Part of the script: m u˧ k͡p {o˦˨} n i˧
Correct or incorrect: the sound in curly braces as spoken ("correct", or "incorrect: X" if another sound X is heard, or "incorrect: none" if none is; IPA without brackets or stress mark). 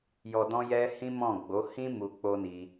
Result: incorrect: o˦